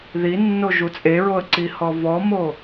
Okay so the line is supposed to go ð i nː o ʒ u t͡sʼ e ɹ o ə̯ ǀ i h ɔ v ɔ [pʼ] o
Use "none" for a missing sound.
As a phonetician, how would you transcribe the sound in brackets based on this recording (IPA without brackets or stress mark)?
m